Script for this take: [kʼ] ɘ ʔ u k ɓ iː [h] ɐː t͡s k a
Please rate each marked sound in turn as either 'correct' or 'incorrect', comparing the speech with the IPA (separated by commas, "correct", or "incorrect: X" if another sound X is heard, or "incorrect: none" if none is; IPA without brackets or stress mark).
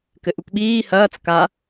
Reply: incorrect: k, correct